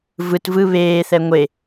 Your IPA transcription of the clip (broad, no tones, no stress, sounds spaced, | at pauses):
v ɯ t v ɯ β eː θ ɛ ŋʷ e